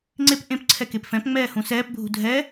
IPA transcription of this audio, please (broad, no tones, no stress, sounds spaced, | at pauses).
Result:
ŋ͡ǀ e p ʔ ẽ p ǀʰ ɛ k e p f ɛ̃ p ŋ͡m ɛː h ũ s ɛː p bʱ ṳ dʱ ɛ